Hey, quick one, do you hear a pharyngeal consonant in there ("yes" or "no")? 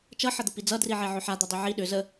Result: yes